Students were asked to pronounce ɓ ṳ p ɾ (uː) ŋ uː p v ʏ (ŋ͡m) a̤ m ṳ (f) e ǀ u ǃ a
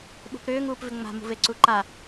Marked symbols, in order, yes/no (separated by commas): no, yes, no